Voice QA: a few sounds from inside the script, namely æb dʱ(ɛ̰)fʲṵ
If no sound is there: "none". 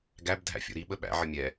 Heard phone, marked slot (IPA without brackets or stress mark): æ̰